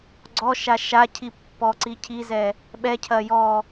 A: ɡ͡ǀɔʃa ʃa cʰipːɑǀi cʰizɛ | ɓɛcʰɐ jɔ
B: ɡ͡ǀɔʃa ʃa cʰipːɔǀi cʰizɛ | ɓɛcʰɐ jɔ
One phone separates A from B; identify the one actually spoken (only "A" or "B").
B